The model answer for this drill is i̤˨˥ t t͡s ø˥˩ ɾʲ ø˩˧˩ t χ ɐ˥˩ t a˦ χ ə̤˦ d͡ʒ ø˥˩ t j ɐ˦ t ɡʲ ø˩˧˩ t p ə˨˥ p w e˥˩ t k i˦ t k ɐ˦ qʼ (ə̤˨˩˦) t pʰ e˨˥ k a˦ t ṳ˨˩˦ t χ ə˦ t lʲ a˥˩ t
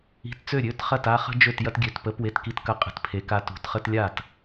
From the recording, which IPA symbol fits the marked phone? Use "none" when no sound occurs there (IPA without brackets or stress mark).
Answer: ə̤˨˩˦